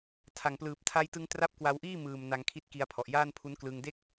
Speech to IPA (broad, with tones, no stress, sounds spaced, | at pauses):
tʰ a˨˩ ŋ p l ɯː˨˩ p̚ tʰ a˧ j t ɯ˧ ŋ t r a˦˥ p̚ k w a˧ w ʔ iː˥˩ m ɯː˨˩ m n a˧ ŋ kʰ i˦˥ t̚ k i˧ a̯ pʰ ɔ˨˩ ʔ j aː˥˩ n pʰ u˦˥ n k l ɯ˧ ŋ d e˥˩ k̚